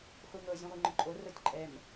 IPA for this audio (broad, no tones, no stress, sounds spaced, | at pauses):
χʷ i ŋ ɤ zʲ ũ ʁʷ i ŋ͡ǃ ʊ ǃʼ o r o tʲ ǃʼ ɛ m